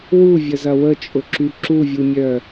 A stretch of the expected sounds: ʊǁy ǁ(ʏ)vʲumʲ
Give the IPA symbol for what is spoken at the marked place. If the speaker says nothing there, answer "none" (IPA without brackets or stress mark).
u